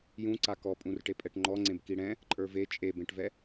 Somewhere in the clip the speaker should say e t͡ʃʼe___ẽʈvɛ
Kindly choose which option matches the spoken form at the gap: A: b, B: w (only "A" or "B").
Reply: A